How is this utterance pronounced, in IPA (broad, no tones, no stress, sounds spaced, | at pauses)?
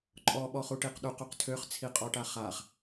ǃʼ ɔ ɓ ɔ χ u ʈ i q ɗ u q u q tʰ ø χ t͡sʰ i qʼ ɔ ʈ a χ a χ